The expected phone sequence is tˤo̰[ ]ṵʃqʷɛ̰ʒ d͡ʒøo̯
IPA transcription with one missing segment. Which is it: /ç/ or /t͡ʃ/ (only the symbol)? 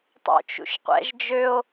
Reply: t͡ʃ